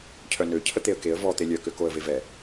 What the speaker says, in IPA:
cʰœnø cʰət̪eə̯keə̯ vɔ t̪elʲœ køkoə̯vevɛ

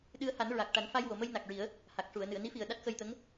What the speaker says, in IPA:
ɗɨ˧ə̯ha˨˩˦n ɹa˨˩k̚ ʈa˨˩˦nfa˧jwo˨˩˨mə˧j na˨˩k̚ɹi˨˩˦ə̯ | ha˨˩k̚ʂu˨˩˨ə̯nɨ˨˩˨ə̯ ni˧˥fi˨˩ə̯ ɗa˦˥t̚xə˧jt̪ə˧˥ŋ

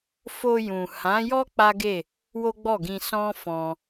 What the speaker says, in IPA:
fo˧jũ˨hã˨˦jɔ˦ k͡pa˦ɡe˦˨ | wo˦ɡ͡bɔ˦˨ɡĩ˧ sɔ̃˦ fɔ̃˧

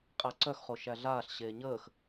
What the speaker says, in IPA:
qʼæǀœxχo ʃæɮaːɬ ɕeːɲəːx

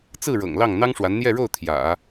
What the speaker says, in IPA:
t͡sɹ̩˥˩ ɻɤ̰˨˩ŋlɑ˥˩ŋ n̪ɑ˥ŋʂwa˧˥nn̪jɛ˥˧ɻo˥˩ʊ̯ t̪ʰjä̰˨˩˦

